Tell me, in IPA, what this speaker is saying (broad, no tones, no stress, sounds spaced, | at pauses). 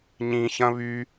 ɲ ĩ ç ɐ̃ β y